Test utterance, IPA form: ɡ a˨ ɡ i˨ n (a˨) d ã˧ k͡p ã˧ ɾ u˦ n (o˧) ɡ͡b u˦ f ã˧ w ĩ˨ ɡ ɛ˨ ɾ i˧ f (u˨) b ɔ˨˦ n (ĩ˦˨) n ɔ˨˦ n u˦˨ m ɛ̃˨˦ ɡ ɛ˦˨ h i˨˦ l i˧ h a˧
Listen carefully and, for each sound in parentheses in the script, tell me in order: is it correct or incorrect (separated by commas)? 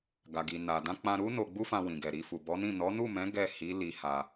correct, correct, correct, correct